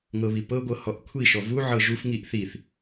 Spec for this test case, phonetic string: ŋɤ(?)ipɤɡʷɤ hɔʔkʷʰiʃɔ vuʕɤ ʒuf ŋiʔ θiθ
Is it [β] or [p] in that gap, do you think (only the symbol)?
β